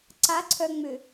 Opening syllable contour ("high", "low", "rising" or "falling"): rising